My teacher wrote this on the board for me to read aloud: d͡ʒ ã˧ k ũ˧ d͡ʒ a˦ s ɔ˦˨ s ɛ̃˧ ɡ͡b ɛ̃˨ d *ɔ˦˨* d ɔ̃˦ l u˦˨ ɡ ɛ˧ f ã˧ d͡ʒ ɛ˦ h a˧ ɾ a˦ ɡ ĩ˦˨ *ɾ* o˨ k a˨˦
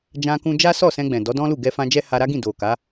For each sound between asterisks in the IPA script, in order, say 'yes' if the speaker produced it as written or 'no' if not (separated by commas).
no, no